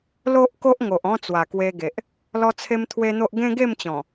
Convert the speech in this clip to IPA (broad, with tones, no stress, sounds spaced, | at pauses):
l o˦ ʔ k o˦ ʔ ŋ o˨ ʔ ɔ̃˧ t͡s w a˨˩ k w e˧ ɡ e˨ ʔ | l ɔ˦ t͡sʰ e˦ m t̪ʰ w e˦ n̪ o˦ ʔ ɡ ẽ˦ ɡ e˥˧ m t͡ɕ ɔ̃˨˩